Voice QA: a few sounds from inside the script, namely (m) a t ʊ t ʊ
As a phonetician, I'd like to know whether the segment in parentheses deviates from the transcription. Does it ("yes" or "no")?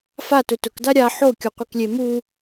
yes